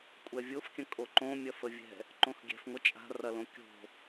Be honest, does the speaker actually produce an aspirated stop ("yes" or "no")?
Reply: no